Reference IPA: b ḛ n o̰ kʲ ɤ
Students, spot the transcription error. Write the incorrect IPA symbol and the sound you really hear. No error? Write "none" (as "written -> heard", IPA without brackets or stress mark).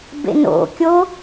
ɤ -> o